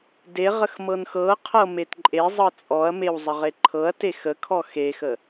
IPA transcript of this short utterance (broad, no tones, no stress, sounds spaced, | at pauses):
d e ʁ ə x m ɤ n x ɤ qʰ ɤ m e t ǃʼ e zˤ ɤ t͡sʼ ɔ ɐ̯ m e w zˤ ə ʁ e ǃʰ ɤ ɐ̯ t e x ə kʰ ɔ x e x ə